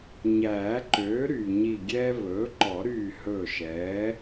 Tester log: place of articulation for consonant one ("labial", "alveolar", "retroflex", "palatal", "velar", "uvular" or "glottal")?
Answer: palatal